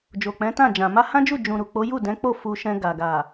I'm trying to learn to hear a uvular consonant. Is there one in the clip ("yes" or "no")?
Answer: no